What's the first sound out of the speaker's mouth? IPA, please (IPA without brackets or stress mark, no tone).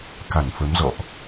k